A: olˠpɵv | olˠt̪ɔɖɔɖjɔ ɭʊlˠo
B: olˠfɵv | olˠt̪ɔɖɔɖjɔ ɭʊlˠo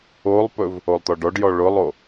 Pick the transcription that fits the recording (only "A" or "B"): A